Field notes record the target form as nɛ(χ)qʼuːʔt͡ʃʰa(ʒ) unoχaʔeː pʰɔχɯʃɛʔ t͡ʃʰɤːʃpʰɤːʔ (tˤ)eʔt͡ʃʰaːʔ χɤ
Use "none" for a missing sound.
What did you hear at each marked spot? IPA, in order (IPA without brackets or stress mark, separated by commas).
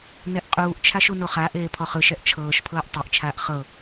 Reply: ʔ, ʃ, tˤ